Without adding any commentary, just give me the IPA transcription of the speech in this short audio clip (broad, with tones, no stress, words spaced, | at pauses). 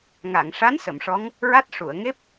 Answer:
ŋa˨˩˨ŋʂa˧˥n sə˨˩˨mʂɔ˧˥ŋ | ɹa˦˥t̚ ʂu˨˩˨ə̯ŋe˦˥p̚